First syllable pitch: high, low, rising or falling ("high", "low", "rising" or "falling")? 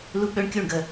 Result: high